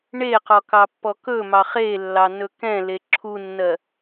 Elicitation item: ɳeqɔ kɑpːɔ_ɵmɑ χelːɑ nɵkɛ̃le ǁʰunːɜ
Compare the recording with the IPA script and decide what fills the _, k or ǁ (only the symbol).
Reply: k